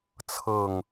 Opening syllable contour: falling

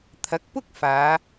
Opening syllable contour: rising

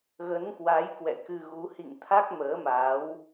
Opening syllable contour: rising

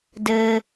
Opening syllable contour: low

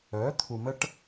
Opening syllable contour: rising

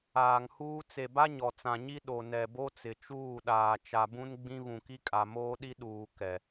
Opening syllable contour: low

